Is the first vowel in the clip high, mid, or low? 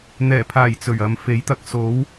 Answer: mid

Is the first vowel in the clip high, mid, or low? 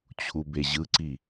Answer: high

